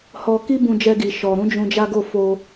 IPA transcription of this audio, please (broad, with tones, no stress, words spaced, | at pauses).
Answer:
hɔ˧ ki˦bũ˧d͡ʒɛ˧ɡi˨ ʃɔ˨ɾũ˧ d͡ʒũ˧d͡ʒa˦ɡo˦˨ fo˧